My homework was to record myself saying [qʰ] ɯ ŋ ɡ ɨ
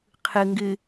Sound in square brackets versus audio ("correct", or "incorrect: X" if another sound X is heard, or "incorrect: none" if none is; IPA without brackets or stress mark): correct